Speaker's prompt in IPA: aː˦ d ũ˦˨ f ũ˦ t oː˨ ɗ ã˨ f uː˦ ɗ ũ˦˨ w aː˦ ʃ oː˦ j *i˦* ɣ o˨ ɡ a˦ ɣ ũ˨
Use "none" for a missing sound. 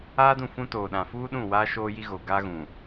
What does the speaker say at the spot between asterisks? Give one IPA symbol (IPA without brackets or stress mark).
i˦